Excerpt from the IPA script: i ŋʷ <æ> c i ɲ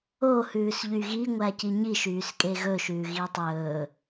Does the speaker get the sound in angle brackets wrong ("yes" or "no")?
no